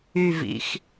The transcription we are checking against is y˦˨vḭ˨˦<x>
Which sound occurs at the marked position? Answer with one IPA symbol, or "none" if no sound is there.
x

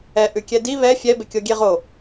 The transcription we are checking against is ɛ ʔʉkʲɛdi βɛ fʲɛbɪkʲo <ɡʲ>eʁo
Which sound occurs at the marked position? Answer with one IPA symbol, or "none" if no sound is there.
ɡʲ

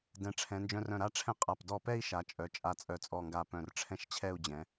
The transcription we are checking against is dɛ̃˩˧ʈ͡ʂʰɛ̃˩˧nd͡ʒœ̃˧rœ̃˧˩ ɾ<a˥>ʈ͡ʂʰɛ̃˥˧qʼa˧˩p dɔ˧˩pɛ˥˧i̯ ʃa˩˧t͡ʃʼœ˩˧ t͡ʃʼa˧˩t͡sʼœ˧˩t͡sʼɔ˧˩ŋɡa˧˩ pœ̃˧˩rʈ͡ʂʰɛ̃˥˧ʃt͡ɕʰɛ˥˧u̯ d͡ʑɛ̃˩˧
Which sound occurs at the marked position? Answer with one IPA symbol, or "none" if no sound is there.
a˥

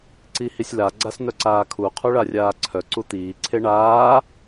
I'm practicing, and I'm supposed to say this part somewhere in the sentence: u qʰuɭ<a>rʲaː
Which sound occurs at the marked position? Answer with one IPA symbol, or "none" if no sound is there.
a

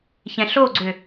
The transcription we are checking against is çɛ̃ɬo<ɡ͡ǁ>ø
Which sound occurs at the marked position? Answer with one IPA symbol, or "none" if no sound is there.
ɡ͡ǀ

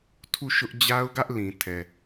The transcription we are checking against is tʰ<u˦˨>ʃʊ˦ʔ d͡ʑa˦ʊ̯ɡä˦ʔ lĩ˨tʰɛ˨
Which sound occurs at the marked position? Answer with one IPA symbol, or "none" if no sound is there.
u˦˨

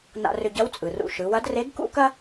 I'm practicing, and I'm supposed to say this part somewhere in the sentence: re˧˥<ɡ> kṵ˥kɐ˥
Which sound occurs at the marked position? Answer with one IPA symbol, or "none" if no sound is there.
ɡ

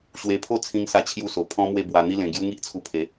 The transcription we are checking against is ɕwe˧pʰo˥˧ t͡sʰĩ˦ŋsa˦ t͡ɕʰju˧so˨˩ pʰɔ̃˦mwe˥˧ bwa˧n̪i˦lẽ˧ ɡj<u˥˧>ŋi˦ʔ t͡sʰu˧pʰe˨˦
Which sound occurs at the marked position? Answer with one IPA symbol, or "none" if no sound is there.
u˦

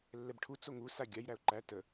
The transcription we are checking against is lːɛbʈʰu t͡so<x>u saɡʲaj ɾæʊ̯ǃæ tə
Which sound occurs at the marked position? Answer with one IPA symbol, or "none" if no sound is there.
ŋ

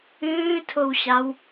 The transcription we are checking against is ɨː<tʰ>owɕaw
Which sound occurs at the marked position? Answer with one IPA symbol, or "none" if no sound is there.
tʰ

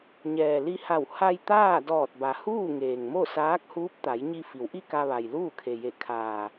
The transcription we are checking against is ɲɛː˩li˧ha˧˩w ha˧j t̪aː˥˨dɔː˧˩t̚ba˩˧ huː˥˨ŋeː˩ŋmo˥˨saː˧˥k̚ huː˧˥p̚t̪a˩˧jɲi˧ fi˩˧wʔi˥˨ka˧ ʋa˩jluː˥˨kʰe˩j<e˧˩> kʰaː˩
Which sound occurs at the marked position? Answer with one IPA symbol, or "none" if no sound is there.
e˧˩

